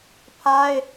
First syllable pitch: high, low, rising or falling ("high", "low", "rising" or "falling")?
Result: high